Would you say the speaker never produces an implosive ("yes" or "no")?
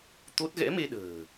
no